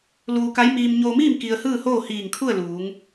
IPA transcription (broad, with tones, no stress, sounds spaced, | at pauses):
l uː˧ k a˧˥ j m iː˧ m ɲ oː˧ m iː˥˨ m k i˧ ə̯ h ɯː˥˨ h oː˥˨ h iː˧˩ ŋ kʰ u˥˨ ə̯ l uː˩˧ ŋ